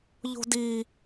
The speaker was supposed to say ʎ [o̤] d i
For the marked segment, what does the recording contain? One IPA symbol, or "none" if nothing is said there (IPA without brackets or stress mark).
o̤